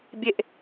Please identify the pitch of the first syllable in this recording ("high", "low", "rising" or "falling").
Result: low